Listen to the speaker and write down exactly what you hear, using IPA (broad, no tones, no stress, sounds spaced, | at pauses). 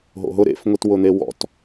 ɦ o̰ ɦ ʊ ɾ ḛ f ŋʷ i t w ʊ n̪ e w ɔ̰ t